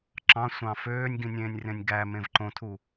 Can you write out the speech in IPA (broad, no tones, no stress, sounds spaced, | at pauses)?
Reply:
ǁ ɑ̃ sʷ ɑ̃ f øː nʲ ɡ ĩ nʲ ẽː nʲ r ẽ nʲ ɡ æ m ẽ v ǃ õ tʰ u